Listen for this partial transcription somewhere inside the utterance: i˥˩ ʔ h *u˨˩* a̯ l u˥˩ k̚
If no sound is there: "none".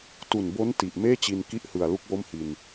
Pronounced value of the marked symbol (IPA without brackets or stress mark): ɯ˨˩